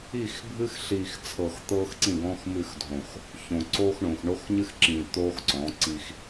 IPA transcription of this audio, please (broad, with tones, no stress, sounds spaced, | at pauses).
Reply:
i˦˨ x bʱ ɨ˦ x ɬ i˨ x t͡sʰ ɤ˨ x t̪ ɤː˦ x ǀ ĩ˦˨ ɡ ɔ̃˦ x m ɨ˦˨ x dʱ õ˨ x | ç õ˨ ǀ oː˦ x ɳ õ˨ x ɳ o˦ x ɲ ɨ˦ x ǁ ĩː˨ t̪ oː˦ x ǀ ɔ̃˨˦ ǀ i˦ x